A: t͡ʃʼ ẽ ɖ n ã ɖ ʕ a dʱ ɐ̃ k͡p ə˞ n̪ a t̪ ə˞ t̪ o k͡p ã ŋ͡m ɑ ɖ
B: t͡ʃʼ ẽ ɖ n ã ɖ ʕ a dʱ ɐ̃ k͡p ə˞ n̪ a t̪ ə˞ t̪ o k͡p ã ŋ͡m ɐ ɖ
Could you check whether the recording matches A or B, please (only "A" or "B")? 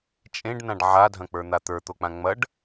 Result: B